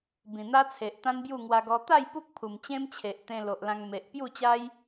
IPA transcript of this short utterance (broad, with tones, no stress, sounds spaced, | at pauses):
b ĩ˨˩ n̪ a˦ t͡sʰ e˨ ʔ t̪ ã˦ n b j u˥˧ ŋ w a˧ ɡ ɔ˧ t̪ a˥˧ j p u˦ k̚ pʰ u˨˩ m t͡ɕ ẽ˦ m t͡ɕʰ e˨ ʔ t̪ ẽ˧ l o˨ ʔ l ã˧ ŋ m e˨ ʔ p j u˥˧ t͡ɕ a˦ j